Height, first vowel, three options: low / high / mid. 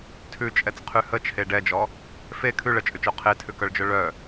high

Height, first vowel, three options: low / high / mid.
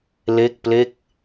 mid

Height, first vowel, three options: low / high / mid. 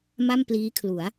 low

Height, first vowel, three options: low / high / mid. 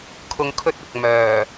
high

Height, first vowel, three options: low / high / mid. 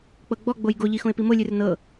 mid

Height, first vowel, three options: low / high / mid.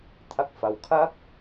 low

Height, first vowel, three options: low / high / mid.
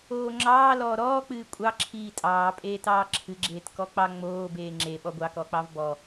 mid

